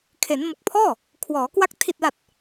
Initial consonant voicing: voiceless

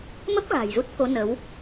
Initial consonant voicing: voiced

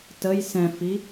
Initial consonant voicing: voiceless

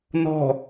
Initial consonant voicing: voiced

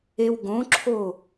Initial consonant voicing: voiced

